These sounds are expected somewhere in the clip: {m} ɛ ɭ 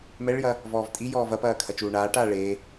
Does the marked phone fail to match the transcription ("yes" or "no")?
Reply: no